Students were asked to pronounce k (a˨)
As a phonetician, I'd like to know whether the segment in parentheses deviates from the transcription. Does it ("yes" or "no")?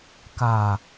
no